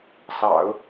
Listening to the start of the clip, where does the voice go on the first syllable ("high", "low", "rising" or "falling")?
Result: low